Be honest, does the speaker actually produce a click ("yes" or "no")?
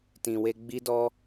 no